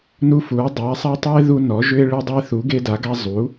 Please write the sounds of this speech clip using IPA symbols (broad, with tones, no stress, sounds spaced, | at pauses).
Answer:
n u˦ f u˩˥ o̯ dˤ a˩˥ sˤ a˦ tˤ u˦ e̯ ð u˦ n ɔ˩˥ ʒ ʏ˦ e̯ ɭ e˦ dˤ ʏ˦ e̯ θ u˩˥ ɡ e˦ d a˩˥ ɡ a˦ zˤ u˩˥